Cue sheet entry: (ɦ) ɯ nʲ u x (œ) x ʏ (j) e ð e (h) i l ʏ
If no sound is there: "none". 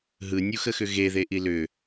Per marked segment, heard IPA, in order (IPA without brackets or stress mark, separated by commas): ɦ, ə, ɣ, ʔ